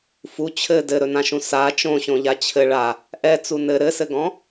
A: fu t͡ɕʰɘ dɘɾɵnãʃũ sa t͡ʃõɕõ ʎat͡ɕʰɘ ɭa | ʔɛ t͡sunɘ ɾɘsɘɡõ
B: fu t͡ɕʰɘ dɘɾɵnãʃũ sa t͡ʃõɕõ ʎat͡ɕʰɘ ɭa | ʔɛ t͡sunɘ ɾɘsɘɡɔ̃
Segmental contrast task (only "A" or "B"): B